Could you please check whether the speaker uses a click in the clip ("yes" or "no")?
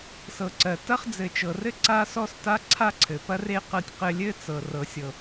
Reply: yes